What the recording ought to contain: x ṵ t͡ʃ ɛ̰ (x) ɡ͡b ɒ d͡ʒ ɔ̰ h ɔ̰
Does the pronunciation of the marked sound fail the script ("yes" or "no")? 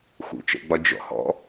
yes